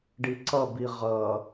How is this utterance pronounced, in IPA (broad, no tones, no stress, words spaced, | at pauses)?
ɖiǀʌbi ʁʌ